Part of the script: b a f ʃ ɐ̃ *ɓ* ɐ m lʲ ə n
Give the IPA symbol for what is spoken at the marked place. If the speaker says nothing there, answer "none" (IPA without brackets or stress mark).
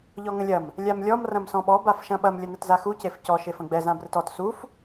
ɓ